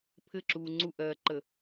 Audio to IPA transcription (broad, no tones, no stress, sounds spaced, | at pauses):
pʰ ɘ ǁ uː ŋ͡ǀ u ʔ ɜː ǃ ə